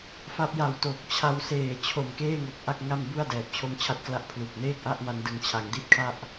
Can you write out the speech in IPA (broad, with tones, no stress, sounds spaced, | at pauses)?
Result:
f a˦˥ p̚ j a˨˩ w t o˨˩ k̚ t͡ɕʰ a˧ w s eː˨˩ t͡ɕʰ o˨˩ m k eː˥˩ ŋ o˨˩ k̚ ʔ a˥˩ k̚ ŋ a˥˩ m b u˥˩ a̯ d ɛː˨˩ p̚ t͡ɕʰ o˦˥ m t͡ɕʰ a˦˥ t̚ k l a˦˥ ʔ pʰ l u˨˩ k̚ n eː˥˩ k̚ ʔ a˥˩ ʔ m a˧ n d ɯ˨˩ ŋ t͡ɕʰ a˩˦ ŋ d i˥˩ t̚ kʰ a˥˩ ʔ